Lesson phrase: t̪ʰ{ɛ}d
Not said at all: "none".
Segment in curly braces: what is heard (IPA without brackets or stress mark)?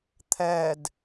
ɛ